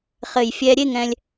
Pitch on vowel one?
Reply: low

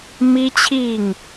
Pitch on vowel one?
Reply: high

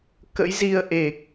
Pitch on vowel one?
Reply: rising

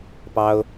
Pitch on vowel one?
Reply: high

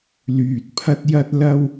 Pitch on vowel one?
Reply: low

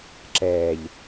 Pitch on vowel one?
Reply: low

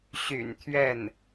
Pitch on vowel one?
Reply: low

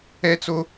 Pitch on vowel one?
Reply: high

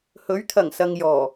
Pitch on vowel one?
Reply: rising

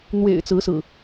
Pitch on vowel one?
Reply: low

